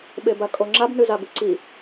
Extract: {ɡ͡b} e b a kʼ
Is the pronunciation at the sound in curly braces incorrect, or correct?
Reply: incorrect